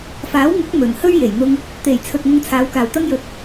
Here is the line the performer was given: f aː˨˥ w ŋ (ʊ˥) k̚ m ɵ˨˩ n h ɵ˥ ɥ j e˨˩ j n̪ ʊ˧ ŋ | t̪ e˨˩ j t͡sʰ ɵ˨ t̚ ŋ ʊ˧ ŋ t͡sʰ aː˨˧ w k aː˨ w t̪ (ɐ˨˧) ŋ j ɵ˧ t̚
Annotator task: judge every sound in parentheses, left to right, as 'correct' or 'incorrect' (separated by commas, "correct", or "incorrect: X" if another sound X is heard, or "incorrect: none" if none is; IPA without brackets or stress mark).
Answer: incorrect: ʊ˨˥, incorrect: ɐ˥